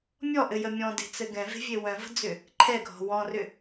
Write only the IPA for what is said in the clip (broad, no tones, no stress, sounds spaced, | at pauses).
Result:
mʲ ɔ ʔ ɘ j ə mʲ ɔ̃ d e̤ t͡s ɘ ɡ ɛ̃ v e̤ vʲ e w œ̃ v ə̤ d͡z ʏ | ǃʰ ɛ ɡʱ ɔ̤ w ɔ̃ r ʏ